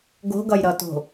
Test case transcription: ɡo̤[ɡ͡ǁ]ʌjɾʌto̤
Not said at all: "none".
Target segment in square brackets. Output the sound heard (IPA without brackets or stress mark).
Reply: ɡ